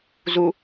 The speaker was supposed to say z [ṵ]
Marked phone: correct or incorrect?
incorrect